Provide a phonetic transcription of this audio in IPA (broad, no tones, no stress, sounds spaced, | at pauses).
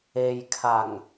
e j kʰ a ŋ